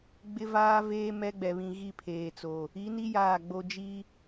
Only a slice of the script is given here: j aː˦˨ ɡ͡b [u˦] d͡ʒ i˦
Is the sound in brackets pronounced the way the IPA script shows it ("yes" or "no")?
no